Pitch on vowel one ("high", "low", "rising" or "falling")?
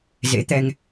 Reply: rising